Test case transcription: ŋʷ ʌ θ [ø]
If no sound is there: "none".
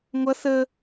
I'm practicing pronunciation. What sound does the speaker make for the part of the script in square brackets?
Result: ə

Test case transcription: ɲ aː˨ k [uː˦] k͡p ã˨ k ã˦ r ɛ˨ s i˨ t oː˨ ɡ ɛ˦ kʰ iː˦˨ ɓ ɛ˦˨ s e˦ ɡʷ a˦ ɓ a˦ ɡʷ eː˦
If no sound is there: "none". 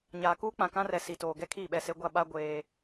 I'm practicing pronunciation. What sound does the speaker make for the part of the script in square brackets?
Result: uː˦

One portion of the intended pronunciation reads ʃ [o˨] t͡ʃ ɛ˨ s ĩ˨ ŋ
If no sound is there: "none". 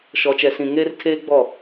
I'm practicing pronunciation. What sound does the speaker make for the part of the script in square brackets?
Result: ɔ˨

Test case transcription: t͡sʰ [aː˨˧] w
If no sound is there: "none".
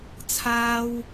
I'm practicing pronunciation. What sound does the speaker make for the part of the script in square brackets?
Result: aː˥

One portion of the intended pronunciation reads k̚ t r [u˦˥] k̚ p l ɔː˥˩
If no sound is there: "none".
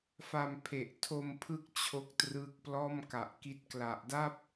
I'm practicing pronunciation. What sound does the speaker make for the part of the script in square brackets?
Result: ɯ˦˥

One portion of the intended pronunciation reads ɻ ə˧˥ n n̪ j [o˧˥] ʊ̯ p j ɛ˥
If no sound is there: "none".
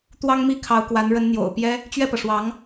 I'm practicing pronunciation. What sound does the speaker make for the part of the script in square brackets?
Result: o̰˨˩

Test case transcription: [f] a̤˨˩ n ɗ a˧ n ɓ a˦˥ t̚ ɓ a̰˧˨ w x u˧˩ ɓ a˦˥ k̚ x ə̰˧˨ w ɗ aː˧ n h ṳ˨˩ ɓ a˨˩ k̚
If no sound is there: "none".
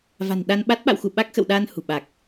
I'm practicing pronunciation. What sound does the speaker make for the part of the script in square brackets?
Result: v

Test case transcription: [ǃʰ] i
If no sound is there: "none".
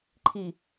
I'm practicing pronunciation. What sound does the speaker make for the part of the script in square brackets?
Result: ǃʰ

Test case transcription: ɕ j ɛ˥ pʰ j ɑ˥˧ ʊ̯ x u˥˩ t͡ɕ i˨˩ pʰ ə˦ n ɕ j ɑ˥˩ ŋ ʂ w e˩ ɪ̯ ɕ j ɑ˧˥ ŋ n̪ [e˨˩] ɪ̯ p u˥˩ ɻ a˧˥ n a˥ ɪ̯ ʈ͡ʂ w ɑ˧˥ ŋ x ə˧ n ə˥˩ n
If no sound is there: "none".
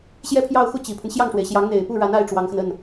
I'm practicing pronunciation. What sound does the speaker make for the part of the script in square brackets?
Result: e˨˩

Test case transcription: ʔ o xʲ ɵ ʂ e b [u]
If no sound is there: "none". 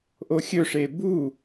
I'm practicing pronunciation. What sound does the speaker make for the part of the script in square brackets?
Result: u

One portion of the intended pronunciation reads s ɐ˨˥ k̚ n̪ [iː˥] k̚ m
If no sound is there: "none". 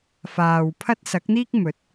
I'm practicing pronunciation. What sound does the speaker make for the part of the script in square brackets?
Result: iː˥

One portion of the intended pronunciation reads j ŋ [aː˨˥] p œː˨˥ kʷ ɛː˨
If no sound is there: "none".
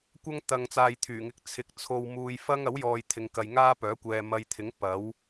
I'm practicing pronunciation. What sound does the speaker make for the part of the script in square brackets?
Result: aː˥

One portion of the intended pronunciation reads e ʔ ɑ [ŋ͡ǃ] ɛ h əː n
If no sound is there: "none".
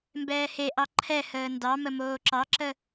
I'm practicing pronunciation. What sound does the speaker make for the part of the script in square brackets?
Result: ǃʰ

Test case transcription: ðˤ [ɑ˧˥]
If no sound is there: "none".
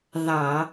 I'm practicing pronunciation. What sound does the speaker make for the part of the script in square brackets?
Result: ɑ˧˩˧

